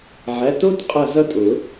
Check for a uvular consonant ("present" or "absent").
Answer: present